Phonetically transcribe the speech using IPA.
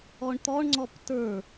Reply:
ɔ ɳ t̪ ɔ ɳ ŋ͡ǀ ɔ p t ə˞

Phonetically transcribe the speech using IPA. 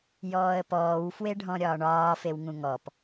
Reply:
j ɔː ə̯ p ɔː w f w e ɖʱ ɔ̃ ɾʲ ɒː ɳ ɒː f e w ŋ ũ ŋ ɔ p

